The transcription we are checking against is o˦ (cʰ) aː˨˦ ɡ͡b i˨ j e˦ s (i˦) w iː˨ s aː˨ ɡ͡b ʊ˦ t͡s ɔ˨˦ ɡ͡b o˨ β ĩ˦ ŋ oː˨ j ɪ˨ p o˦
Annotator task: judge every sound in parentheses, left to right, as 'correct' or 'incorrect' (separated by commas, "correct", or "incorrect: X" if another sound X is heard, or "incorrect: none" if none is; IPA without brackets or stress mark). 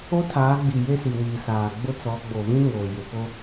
incorrect: tʰ, incorrect: i˨